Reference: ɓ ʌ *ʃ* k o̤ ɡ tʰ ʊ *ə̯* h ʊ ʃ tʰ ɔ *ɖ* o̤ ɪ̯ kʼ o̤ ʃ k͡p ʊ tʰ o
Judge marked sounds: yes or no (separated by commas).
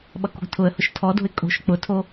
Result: no, yes, no